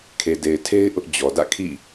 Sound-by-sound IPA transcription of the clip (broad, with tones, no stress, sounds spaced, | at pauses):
kʰ e˨ d e˨ ɪ̯ tʰ e˦ ɪ̯ ʔ ʊ˦ ʔ d͡ʑ ɔ˨ d ä̰˦˨ kʰ ḭ˦˨